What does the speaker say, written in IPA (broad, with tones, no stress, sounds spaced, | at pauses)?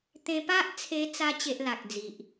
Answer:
t̪ ẽ˧ p a˦ ʔ t͡sʰ e˧ t͡s a˧ t͡ɕ e˦ ʔ l a˨ k̚ d͡z i˨ ʔ